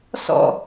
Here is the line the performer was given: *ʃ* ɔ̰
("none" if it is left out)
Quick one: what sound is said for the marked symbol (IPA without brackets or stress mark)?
s